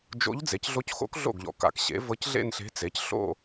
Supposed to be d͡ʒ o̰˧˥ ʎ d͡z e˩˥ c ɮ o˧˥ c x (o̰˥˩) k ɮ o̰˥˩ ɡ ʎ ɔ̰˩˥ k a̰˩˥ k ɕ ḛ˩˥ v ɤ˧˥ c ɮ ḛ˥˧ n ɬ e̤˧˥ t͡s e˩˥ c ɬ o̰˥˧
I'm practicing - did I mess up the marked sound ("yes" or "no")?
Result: yes